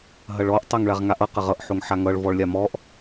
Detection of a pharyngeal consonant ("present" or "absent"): present